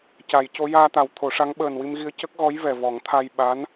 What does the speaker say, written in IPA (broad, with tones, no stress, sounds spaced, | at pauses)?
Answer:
c a˨˩˦ j c o˧˥ j aː˧ t̪ a˨˩ w t̪ʰ o˨˩˦ ʂ a˧˥ ŋ ɓ əː˨˩ n w i˧ m ɣ i˧ ə̯ c ə˦˥ k̚ ɣ ɔ˧˥ j v ɛ˨˩ v ɔ˨˩˦ ŋ t̪ʰ a˧ j ɓ a˧˥ n